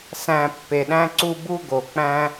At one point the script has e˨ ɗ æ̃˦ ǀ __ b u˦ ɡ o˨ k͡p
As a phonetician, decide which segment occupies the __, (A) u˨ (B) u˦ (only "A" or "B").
B